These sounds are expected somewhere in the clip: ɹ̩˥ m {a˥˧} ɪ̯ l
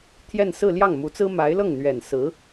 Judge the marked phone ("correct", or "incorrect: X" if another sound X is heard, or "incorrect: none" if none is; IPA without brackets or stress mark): incorrect: a˧˥